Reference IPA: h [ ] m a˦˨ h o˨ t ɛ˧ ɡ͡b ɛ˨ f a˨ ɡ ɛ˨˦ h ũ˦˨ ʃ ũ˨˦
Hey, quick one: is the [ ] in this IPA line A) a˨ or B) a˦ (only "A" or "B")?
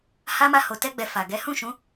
B